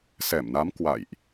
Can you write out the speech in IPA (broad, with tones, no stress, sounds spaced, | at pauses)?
s ɛ˧˩ m n a˨˦ m k w a̰˧˨ j ʔ